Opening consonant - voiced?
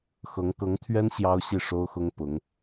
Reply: no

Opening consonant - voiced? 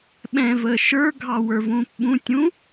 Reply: yes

